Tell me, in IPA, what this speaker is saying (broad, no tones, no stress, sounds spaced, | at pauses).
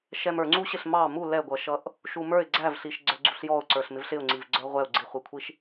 ʃ ɛ m ə˞ ŋ͡ǀ u ɕ ɪ ɬ m ɑ m u l ɛ ɡʷ ʌ ʃ ʌ ʔ | ʃ u m ə˞ ɪ̯ ɡ͡ǀ æ v ɬ i ʃ ɡ͡ǀ ə˞ ɡ͡ǀ u ɬ j ɔ ʊ̯ ǀ ə˞ ɬ m ɪ v ɬ ɪ ʊ̯ ŋ͡ǀ i v ɡ͡ǀ ə˞ ʁʷ ɛ ʊ̯ ɡ͡ǀ i χʷ i kʷʰ i ʃ